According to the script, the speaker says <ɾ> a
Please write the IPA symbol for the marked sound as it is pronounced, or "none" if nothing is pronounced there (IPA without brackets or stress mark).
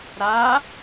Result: ɾ